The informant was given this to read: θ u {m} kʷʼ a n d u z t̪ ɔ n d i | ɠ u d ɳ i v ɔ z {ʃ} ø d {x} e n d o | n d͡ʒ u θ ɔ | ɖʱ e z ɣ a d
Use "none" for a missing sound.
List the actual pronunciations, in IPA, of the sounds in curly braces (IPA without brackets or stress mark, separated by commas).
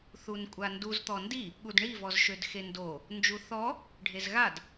n, ʃ, x